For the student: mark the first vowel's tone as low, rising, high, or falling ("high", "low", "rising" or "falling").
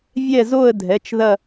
falling